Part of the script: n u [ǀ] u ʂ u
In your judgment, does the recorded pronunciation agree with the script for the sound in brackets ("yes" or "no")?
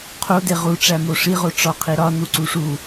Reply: yes